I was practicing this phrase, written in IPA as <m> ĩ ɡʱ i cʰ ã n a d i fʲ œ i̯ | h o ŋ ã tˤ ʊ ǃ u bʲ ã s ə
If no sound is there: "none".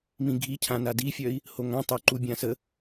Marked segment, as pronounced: m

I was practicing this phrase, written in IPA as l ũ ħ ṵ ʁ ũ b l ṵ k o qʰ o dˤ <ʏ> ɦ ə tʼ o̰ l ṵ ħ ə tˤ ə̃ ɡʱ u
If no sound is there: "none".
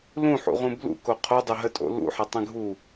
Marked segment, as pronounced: ʏ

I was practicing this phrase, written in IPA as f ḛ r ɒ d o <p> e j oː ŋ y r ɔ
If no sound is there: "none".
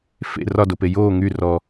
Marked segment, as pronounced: p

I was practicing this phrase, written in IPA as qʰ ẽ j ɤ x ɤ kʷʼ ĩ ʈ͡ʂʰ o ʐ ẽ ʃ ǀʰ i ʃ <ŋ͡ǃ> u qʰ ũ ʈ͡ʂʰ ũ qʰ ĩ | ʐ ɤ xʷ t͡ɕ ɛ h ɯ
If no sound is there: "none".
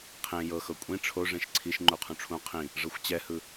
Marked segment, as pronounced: ŋ͡ǃ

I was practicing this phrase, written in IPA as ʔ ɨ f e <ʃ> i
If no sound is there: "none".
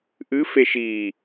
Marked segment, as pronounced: ʃ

